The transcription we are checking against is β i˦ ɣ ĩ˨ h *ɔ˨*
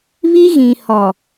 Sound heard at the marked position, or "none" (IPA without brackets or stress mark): ɔ˨